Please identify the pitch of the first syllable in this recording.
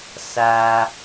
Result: low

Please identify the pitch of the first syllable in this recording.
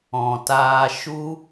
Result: low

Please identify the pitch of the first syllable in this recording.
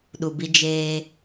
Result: low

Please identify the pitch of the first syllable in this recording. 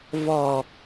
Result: low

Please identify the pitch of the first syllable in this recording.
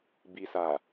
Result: low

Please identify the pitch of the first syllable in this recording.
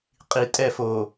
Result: low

